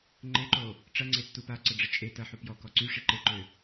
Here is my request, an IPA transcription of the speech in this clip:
ŋ͡ǃ e ǃ o | ʈ͡ʂ ɐ ŋ͡ǀ e tː u p a ǀ ə ɖ͡ʐ ə t͡ʃʼ e t ɐ ħ u p j ɔ k ɔ ǀ y ʂ i ǃ e ǃ ø

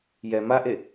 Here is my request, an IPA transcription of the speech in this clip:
j ɛ m a ʔ e

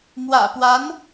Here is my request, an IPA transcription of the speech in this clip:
m w ä̰˨˩ p w a˧˥ n

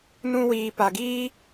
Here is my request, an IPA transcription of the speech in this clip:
n ũ˧ w iː˨ p a˨ ɡ iː˦

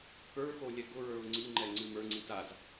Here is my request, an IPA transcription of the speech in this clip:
k ə˞ x o lʲ ɛ ɡ ʊ ɹ ə˞ ʊ̯ ŋ͡ǀ i ŋ͡ǃ ɛ ŋ͡ǀ ɨ m ə˞ ŋ͡ǀ i t a z

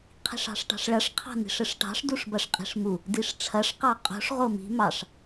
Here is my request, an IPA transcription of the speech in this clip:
qʰ i̤ ʂ ɑ̤ ʂ ʈ ɑ̤ ʂ ɭ ɐ ʂ qʰ ɑ̤ n i̤ ʂ ɘ ʂ ʈ ɑ̤ ʂ d u ʂ b ɐ ʂ qʼ i̤ ʂ m u | d i ʂ ʈ͡ʂʰ ɐ ʂ q ɑ qʼ o̤ ʂ ʁ o m i̤ m ɑ ʂ

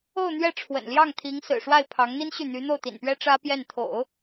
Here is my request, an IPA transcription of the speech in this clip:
o˥˧ ʊ̯ n̪ ɥ ɛ˥˩ ʈ͡ʂʰ w ə̰˨˩ n l j ɑ˥˩ ŋ t̪ʰ i˧˥ ŋ s ɹ̩˨˩ ʂ w a˥˩ ɪ̯ pʰ ɑ˧˥ ŋ n̪ i˥ n ɕ y˥˩ n̪ y˧˥ n̪ o˥˩ ʊ̯ t̪ ḭ˨˩ n p ɥ ɛ˥ ʈ͡ʂ ä˥ p j ɛ˥˩ n t̪ʰ o̰˨˩˦ ʊ̯

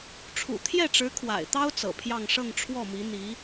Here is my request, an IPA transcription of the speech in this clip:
ʈ͡ʂʰ ṵ˨˩ t̪ʰ j ɛ˥˩ ʈ͡ʂ ɻ̩˧˥ kʰ w a̰˨˩ ɪ̯ t̪ ɑ˥ ʊ̯ t͡s ɤ̰˨˩ pʰ j ɑ˥˧ ŋ ʂ ɤ˥˧ ŋ ʈ͡ʂʰ w ɔ˥˩ m i˧˥ n̪ i˧˥

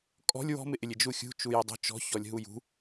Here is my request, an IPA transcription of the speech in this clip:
kʼ ɔ̤ lʲ w ɔ̤ m ɪ ʔ ɪ lʲ ɪ d͡ʒ u xʲ ṳ t͡ʃ u j ɪ dˤ ṳ t͡ʃ ɔ̤ ç ɔ lʲ ɦ u j ṳ

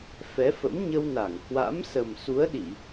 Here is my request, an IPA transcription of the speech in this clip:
f ɛ˨˦ f ə̰˧˥ m ɲ ə˧ w n a˧˩ ŋ h w a̰˧˥ m s ə˨˩ m s u˨˦ ə̯ ɗ i˧˩˨

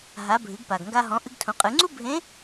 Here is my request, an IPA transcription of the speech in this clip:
ɦ a˩˧ bʱ ɨ˩˧ ɡ p a˩ ɡ ŋ ɡ a˧ ɦ ɔ̃˩˧ ʔ ɨ˧ ɡ tʰ ũ˩˧ qʼ ɨ˩˧ ŋ͡ǀ u˥ bʱ ẽ˧˥

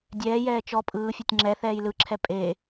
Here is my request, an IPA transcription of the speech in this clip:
dʲ ɛː j ɛː t͡ʃ ɔ pʼ ɯː fʲ e tʲ ŋ͡ǁ ɛ θ ɛː j l ɯ ǁʰ ɛ pʼ e

